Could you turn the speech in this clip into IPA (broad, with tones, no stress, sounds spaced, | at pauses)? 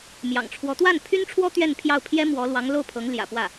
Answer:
m j ɑ̰˨˩ ŋ ʈ͡ʂʰ w ɔ˧˥ t̪ w a˥˩ n pʰ y˥ n ʈ͡ʂʰ w ɔ˥ t̪ ɥ ɛ˥˧ n pʰ j ɑ˥˩ ʊ̯ pʰ j ɛ˥ m w ɔ˧˥ l w ɑ˧˥ ŋ l o˥˩ ʊ̯ pʰ ɤ˧˥ ŋ l j ä̰˨˩ p w ä˥˩